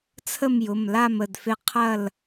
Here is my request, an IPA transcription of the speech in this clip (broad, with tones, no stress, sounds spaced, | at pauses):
t͡sʰ ə˥˨ m j ʊ˩˧˩ m l a˥˨ m ə˩˧˩ d f e˥˨ qʰ ɐ˥˨ l